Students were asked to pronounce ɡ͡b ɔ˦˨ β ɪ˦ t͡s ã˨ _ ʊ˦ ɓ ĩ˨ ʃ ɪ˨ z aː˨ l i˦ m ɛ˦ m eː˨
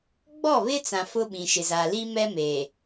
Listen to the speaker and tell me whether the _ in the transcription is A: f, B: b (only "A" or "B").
A